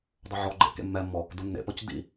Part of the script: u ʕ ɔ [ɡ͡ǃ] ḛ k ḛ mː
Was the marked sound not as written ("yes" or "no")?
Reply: no